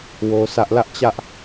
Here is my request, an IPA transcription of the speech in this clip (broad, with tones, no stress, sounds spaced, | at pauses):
w o˦ s ä˦ ʔ l ä˦ ʔ t͡ɕ ä˦ ʔ